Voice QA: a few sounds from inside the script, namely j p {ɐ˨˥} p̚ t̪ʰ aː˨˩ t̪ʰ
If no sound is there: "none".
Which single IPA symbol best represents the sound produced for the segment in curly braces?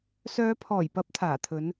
ɐ˨˥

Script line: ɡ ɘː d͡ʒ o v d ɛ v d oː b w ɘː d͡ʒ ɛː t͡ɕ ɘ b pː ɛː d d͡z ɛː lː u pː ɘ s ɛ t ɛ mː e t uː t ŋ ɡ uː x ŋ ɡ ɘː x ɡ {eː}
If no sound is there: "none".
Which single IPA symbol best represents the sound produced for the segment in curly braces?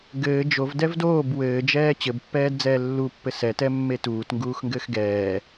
ɛː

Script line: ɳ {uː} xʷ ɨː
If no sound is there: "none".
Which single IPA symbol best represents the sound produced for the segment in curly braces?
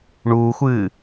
uː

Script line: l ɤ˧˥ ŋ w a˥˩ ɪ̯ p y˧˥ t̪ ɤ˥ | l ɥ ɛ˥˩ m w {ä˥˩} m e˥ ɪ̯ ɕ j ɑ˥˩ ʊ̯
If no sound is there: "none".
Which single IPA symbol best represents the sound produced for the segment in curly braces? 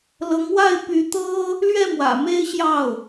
ä̰˨˩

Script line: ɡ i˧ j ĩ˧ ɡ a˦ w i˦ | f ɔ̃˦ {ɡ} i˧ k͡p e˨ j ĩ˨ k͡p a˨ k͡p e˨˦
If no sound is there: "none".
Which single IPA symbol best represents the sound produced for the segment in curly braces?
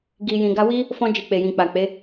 d͡ʒ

